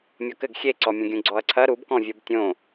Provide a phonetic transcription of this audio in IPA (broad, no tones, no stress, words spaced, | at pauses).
mʲɔkɘɡ xʲeǀɔmʲɐ̃ɡʲũ ɡ͡ǀɔɐ̯ǀʰɐ ɾubkɔ̃vʲob tʲõ